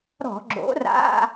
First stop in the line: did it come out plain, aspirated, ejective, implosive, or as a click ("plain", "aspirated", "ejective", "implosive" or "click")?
click